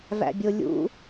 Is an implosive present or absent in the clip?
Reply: absent